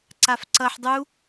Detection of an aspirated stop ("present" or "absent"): absent